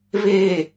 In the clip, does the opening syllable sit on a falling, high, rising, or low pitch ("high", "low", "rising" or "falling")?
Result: low